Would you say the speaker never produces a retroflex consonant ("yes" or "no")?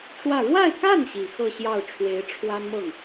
no